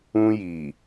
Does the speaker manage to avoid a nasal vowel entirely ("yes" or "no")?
no